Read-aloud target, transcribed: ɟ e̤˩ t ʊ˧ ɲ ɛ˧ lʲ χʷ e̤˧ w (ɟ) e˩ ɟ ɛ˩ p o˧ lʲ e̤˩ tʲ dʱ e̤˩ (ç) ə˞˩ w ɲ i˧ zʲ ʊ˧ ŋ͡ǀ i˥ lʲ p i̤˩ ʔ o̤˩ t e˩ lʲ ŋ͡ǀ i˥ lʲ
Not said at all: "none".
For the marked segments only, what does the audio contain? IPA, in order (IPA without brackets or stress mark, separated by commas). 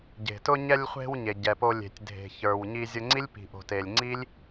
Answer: ɲ, ç